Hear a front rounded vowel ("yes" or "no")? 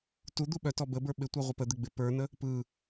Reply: yes